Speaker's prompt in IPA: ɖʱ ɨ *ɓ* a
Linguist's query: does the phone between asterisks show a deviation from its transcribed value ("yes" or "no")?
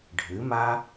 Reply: yes